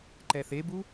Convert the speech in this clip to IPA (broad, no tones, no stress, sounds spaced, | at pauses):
ǃ ɛ θ e b u